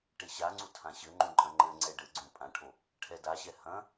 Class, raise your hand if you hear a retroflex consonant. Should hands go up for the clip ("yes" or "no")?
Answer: yes